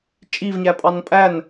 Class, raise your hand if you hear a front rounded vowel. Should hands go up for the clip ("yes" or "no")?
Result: no